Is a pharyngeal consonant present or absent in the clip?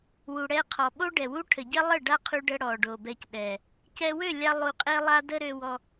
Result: absent